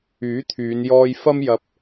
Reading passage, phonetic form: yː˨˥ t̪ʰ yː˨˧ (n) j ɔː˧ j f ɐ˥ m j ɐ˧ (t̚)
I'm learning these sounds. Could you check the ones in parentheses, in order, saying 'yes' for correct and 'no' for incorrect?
yes, no

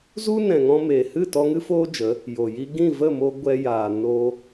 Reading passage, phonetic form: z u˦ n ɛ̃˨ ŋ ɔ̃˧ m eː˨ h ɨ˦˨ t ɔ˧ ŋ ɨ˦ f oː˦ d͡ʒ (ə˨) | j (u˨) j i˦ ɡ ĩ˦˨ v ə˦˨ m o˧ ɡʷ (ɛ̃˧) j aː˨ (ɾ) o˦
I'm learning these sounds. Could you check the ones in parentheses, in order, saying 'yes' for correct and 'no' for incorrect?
no, no, no, no

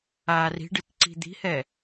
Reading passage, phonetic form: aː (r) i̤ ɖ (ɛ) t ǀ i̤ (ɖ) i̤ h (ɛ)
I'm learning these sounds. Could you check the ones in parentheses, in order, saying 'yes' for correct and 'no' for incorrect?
yes, no, no, yes

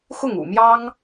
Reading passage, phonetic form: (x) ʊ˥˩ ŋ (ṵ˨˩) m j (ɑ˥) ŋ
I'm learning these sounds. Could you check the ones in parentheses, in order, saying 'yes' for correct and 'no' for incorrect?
yes, yes, yes

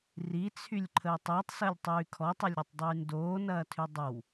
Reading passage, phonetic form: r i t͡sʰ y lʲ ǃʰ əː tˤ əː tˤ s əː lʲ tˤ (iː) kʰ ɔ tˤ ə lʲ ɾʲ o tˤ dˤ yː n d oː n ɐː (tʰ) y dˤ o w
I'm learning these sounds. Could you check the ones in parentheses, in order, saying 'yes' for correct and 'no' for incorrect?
no, yes

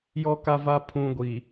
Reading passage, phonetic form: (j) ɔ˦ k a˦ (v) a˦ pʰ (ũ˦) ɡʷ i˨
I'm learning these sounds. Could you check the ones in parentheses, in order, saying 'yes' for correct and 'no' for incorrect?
yes, yes, yes

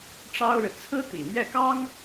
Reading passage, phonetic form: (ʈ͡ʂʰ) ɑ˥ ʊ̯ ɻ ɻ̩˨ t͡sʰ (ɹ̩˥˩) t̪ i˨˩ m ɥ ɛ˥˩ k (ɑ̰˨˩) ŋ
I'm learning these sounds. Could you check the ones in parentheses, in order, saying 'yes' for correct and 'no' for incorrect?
no, no, no

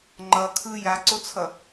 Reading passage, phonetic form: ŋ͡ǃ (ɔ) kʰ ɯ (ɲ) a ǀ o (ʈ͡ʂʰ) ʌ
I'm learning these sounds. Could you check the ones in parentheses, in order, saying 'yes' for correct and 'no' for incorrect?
no, no, no

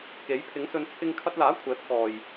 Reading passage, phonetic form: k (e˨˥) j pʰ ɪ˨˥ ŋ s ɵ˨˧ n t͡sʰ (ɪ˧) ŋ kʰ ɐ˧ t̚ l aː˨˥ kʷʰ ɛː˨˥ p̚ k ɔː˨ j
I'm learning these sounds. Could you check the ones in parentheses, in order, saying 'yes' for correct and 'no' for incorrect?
yes, yes

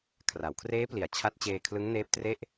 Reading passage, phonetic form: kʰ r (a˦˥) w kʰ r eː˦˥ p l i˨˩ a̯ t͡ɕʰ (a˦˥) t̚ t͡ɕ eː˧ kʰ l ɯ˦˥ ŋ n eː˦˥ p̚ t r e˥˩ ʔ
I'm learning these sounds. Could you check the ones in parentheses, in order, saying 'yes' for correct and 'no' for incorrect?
no, yes

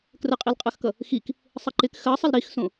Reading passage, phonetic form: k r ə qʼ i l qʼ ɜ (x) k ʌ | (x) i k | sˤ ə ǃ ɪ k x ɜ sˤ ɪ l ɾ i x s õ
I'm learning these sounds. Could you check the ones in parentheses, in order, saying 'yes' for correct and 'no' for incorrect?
yes, yes

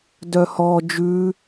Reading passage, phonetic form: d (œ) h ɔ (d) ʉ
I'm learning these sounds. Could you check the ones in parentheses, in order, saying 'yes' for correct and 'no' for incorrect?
yes, no

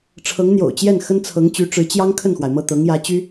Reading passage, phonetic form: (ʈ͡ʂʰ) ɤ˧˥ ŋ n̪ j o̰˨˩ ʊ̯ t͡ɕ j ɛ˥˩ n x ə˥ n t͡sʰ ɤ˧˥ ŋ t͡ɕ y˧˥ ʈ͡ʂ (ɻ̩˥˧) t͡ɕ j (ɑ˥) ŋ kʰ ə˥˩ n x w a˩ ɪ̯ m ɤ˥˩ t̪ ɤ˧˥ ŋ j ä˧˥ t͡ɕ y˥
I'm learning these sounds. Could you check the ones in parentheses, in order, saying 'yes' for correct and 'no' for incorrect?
yes, no, yes

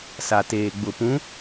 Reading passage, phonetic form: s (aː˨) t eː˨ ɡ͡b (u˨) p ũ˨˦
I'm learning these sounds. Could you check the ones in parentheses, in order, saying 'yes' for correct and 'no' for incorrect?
no, no

